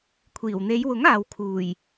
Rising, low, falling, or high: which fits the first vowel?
low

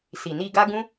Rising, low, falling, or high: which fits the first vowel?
low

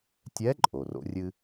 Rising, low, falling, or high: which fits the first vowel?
rising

